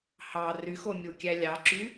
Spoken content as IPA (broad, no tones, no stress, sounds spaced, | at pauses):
h ɑ r y x o mʲ u kʲ æ lʲ ɑ ǁ y